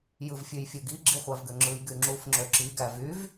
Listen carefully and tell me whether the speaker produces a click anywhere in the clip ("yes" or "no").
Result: yes